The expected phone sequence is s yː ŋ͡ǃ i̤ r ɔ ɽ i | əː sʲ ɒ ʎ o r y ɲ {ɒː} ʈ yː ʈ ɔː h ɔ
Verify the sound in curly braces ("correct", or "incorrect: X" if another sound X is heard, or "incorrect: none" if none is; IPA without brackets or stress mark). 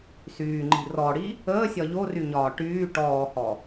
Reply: correct